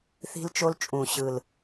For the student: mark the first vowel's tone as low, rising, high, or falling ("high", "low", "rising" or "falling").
high